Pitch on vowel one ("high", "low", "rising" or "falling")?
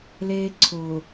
high